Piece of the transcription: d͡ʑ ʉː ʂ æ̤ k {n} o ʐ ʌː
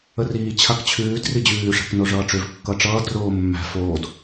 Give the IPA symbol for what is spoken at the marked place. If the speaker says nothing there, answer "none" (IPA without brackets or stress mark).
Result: n